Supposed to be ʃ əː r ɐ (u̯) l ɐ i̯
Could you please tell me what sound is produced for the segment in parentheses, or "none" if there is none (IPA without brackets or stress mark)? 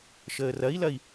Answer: i̯